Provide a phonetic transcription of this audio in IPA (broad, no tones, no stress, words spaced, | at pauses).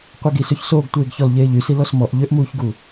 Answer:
qʷiɡis øçsoːɡtʷeːɡ çɔlʎeːʎysi lɔsmɔʔ ʎøʔmuːçɡu